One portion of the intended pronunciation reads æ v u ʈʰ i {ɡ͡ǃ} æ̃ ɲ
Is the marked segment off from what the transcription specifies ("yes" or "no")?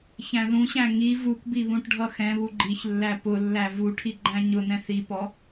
no